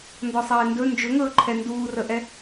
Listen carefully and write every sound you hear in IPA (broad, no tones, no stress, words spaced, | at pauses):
ndɔsˤɛːndɵ nd͡ʒɵŋɵː ǃʰɛnduːrəʔɛ